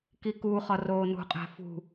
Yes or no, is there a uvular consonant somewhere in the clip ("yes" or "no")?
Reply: yes